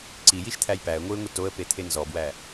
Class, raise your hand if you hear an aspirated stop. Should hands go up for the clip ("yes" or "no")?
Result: yes